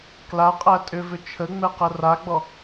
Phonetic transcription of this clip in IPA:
k l a qʼ æ tʼ ʏ v ʏ t͡ʃʰ ə ŋ͡m ɛ q ə r a ɡ͡b ɔ

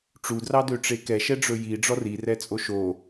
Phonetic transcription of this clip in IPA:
ʈ͡ʂ u d r ɑ d ø ʈ͡ʂ e k ɛ ʃ ɛ ɖ͡ʐ ɵ j i ɖ͡ʐ ɔ r i r ɛ t͡sʼ o ʃ o

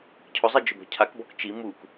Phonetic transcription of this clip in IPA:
cʰ ʊ zˤ e d͡ʒ ʊ b ɔ̤ cʰ a k b ɔ k t͡ʃ i m u k

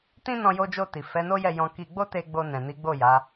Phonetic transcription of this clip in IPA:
t ĩ˦ n ɔ̃˧ j o˧ d͡ʒ o˧ t i˨ f ɛ˨˦ n o˦ j ɛ˦˨ j ɔ̃˧ k i˧ ɡ͡b o˦ t e˧ ɡ͡b o˧ n ɛ̃˨ n i˨˦ ɡ͡b o˦˨ j a˨˦

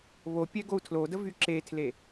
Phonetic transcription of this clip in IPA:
β o pʲ ɛ ɡ o u̯ tʰ l o d ə v y ǁ e tʰ l e

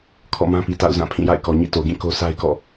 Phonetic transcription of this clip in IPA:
kʰ ɔ̰˦˨ m ã˦ p i˨ t a̰˦˨ ʊ̯ z ã˦˨ pʰ ĩ˦˨ j a̰˦˨ ɪ̯ k ɔ˨ ɲ ḭ˦˨ t o˨ ɡ ĩ˦˨ k o˦ s a˦ ɪ̯ k ɔ̰˦˨

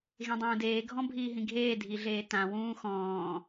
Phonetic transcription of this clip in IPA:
ɣ ẽ dˤ ũː d eː ɡʱ ɔ̃ bʱ iː ɦ ĩ ɡʱ eː dʱ i ɮ eː t ã w ũː x ɔ̃ː

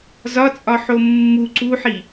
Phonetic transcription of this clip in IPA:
z ɒ t͡sʼ ɒ ħ o mː u ǀ u ħ i

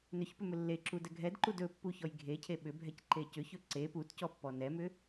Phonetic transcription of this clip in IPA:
n ʏ ç p ʏ m ɵ lː e ǁ u d ɛ ɡʱ ɛ d ǃ u d ɵ pː u ç ɔ j ɡʱ e cʰ e ɓ ʏ bʱ ɛ c ǃ e c ʏ ç ɵ ǀ e p u t c ɔ pː ɔ n ɛ m ʏ

